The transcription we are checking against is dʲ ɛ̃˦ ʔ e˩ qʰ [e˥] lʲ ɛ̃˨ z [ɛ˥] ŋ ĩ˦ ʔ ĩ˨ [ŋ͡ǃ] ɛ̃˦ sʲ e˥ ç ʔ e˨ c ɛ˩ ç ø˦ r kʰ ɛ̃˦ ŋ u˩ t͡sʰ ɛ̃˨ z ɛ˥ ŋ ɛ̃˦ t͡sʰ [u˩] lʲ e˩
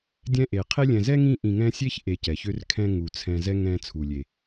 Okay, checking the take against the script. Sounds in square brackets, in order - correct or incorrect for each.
correct, correct, incorrect: ŋ, correct

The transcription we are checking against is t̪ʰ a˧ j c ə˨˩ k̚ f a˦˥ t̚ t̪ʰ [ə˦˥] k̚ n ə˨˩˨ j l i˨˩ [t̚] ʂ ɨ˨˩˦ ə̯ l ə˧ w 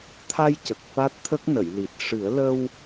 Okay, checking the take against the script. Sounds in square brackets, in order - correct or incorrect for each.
correct, correct

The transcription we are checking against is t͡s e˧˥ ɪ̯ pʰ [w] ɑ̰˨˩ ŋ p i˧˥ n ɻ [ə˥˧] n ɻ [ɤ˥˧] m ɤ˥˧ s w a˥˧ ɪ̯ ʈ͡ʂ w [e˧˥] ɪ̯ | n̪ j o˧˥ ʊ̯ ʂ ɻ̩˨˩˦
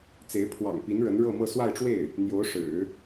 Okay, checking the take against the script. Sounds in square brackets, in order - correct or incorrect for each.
correct, incorrect: ə˧˥, correct, incorrect: e˥˩

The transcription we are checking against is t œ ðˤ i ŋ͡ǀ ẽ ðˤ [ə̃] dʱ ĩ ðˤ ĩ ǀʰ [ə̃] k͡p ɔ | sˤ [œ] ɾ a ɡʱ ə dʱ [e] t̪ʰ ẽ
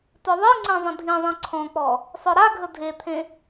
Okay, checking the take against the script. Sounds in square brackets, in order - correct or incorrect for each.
correct, incorrect: ɔ̃, correct, correct

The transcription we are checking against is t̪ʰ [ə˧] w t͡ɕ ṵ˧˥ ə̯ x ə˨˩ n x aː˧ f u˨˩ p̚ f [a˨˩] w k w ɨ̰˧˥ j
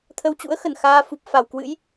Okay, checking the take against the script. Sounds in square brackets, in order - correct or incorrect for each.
correct, correct

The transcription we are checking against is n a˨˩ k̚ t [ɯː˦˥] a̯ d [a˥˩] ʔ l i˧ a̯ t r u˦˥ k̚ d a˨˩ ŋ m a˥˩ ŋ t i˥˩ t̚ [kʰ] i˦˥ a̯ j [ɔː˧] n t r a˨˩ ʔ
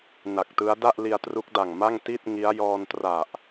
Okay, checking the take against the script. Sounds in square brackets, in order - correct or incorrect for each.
incorrect: ɯ˦˥, correct, incorrect: ŋ, correct

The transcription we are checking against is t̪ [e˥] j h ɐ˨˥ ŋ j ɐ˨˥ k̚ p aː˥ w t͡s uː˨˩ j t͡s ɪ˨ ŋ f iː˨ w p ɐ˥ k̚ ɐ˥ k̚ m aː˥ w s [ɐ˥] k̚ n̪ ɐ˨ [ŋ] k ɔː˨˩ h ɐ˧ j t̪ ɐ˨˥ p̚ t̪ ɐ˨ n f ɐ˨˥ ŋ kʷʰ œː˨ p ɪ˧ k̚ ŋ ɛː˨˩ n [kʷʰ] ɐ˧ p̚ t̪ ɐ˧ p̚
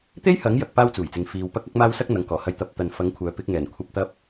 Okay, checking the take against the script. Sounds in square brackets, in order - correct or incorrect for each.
correct, correct, correct, correct

